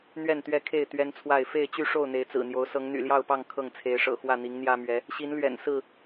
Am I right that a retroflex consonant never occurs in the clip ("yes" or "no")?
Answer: no